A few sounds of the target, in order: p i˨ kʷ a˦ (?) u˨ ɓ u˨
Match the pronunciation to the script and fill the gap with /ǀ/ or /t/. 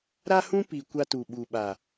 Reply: t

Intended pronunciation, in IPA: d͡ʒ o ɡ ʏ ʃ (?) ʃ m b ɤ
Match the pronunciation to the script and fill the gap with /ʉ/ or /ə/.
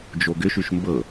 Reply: ʉ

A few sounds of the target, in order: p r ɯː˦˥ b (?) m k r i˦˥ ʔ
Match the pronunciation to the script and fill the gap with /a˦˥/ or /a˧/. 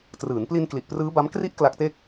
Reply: a˦˥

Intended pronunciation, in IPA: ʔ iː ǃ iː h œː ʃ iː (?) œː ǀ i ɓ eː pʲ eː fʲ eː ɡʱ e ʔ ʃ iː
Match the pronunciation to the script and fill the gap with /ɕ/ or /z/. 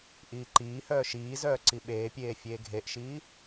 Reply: z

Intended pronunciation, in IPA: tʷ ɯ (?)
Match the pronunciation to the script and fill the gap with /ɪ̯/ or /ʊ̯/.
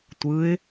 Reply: ɪ̯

